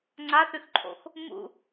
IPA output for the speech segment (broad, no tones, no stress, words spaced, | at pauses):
ŋ͡ǀaθʉxǃʰo̰x | mṵ